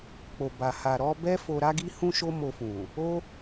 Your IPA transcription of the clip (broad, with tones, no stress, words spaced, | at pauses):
k͡po˨ba˨ ha˨ɾɔ˧ bɛ˦fo˧ɾa˦ɡi˦ hũ˦ʃo˦mo˧fũ˨ | o˦